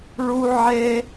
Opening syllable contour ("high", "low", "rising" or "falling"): high